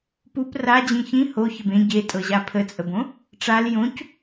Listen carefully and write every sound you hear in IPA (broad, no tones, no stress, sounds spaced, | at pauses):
p u p r a d͡ʑ ĩ ç ĩ h o ç ə b ẽ ɟ e tʼ ɤ ʑ a pʰ ə t͡sʼ ə b õ | ʈ͡ʂ a l j õ c